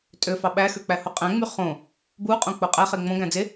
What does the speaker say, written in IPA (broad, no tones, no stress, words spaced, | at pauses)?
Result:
tʼøfɑ ɓæxøk͡pæho qʼæ̃ŋ͡my χõ | buqʼõk͡po qʼæχe ŋ͡mõɡæ̃ d͡ze